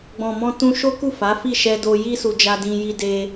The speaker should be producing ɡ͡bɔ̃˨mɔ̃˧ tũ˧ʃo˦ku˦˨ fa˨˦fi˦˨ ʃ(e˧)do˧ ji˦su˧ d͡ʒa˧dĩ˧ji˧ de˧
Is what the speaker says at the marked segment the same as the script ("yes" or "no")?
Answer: no